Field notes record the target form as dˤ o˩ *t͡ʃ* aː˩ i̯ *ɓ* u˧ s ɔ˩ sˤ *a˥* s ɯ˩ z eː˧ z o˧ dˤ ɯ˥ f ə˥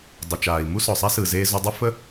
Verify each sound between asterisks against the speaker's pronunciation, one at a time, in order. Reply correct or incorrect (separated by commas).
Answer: correct, incorrect, incorrect